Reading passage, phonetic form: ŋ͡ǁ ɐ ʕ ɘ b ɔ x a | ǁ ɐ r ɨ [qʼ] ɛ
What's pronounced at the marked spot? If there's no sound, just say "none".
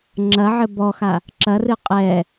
qʼ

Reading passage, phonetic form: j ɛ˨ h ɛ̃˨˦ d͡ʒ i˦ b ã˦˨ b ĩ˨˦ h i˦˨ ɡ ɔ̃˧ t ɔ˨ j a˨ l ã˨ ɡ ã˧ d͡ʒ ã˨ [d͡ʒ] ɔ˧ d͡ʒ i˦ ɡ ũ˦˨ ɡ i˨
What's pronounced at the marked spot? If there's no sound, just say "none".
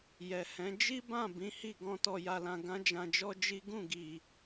d͡ʒ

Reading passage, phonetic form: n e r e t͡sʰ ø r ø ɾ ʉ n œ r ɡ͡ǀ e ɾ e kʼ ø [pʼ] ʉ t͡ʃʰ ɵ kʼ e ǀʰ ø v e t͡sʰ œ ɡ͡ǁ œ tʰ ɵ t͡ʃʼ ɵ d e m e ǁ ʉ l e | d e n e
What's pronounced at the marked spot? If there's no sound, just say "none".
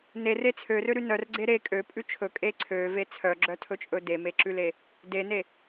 pʼ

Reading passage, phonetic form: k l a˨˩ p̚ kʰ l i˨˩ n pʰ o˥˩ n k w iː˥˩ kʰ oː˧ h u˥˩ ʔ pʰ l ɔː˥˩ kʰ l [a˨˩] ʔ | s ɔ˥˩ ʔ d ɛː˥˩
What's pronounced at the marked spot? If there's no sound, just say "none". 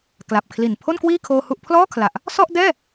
a˨˩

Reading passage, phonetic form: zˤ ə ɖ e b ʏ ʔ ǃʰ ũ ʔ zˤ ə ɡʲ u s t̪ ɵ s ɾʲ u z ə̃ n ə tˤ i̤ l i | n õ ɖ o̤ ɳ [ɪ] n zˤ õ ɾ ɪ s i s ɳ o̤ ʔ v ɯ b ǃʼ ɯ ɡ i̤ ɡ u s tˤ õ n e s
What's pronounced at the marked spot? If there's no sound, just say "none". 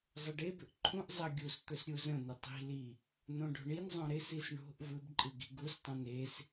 i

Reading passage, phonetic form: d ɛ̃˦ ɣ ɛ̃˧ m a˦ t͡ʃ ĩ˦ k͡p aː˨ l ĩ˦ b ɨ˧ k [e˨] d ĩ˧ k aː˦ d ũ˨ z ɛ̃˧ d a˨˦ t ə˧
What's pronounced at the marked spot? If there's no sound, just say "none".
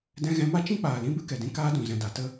ɛ˨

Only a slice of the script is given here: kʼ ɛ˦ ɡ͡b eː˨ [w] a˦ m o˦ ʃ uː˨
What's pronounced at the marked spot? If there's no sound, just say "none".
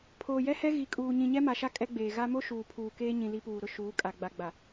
ɣ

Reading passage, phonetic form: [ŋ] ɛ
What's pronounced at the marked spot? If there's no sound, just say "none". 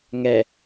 ŋ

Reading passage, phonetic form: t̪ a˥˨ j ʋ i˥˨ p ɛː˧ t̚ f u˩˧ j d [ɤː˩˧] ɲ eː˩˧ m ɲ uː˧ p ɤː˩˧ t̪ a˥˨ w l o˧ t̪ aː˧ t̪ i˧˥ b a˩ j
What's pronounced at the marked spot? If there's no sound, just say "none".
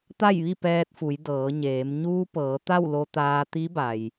ɤː˩˧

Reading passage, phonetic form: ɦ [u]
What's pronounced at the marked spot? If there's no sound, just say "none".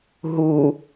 u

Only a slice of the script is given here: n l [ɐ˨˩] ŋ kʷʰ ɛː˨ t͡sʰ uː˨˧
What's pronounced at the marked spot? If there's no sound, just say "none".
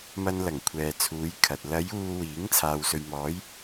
ɐ˨˩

